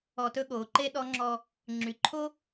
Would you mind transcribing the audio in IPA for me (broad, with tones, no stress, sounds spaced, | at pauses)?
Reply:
ɔ˧ t ɵ˥ ɠ oː˩˧ ǃ e˥ ɗ ɔ˧˥ ŋ͡ǁ ɔ˧ | ŋ͡ǁ y˩˧ ǃʰ o˥